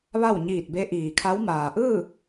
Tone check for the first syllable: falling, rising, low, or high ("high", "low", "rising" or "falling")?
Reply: falling